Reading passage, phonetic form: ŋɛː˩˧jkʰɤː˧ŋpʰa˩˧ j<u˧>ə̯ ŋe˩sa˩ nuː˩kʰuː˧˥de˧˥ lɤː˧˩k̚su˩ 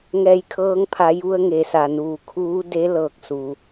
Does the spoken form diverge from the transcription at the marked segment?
no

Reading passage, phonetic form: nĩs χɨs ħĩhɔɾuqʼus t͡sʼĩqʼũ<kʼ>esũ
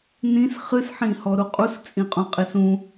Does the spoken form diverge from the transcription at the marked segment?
yes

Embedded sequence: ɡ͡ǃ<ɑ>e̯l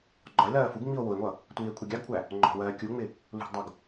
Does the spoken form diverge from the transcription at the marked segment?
yes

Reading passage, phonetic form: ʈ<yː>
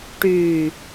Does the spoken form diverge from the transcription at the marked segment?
no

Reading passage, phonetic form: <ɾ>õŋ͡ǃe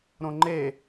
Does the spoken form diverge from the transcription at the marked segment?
no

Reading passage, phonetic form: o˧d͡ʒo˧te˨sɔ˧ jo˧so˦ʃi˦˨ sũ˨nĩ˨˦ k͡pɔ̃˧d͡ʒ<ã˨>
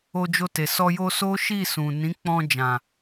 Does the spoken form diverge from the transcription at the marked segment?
no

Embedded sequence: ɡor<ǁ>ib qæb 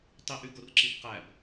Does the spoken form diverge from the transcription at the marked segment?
no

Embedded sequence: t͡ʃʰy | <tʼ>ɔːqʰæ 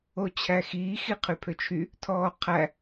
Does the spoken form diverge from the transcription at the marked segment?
yes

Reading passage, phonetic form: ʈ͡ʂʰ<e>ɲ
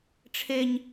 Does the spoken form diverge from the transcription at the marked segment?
no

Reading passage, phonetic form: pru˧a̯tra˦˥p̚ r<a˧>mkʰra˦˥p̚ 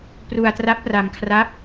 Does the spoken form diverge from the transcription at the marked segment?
no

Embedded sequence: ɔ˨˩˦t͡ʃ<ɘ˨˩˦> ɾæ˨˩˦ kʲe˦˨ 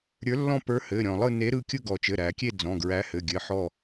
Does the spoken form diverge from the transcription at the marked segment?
yes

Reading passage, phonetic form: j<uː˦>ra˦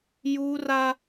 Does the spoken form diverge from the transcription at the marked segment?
no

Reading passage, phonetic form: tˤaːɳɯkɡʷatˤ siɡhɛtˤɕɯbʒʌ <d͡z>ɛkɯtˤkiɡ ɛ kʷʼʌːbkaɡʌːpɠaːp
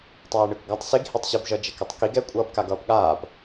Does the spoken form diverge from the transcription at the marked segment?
yes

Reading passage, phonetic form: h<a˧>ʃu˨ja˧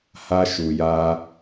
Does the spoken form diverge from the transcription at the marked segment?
no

